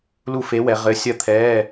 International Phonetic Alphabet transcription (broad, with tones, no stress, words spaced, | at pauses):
lu˥˧fe˧˥wɛ˩˧ ʁɘ˧˥ sʲɐ˥˧t̪ʰɛː˧˥˧